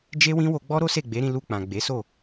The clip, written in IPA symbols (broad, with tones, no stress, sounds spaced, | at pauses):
d͡ʒ e˦ w ĩ˦ w o˧ ɡ͡b ɔ˦ ɾ o˦ s e˦˨ ɡ͡b e˨˦ ɾ ĩ˧ l u˧ k͡p ã˨ ɡ͡b e˨˦ s o˦˨